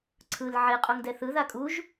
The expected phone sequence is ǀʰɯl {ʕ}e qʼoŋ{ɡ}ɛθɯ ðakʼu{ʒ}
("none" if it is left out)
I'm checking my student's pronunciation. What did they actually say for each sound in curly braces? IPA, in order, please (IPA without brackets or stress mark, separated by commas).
ʕ, d, ʒ